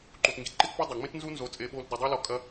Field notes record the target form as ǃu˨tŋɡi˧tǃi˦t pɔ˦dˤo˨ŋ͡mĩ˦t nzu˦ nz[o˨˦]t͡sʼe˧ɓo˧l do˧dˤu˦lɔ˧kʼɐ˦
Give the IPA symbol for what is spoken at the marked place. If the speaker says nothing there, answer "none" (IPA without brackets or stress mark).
o˨˦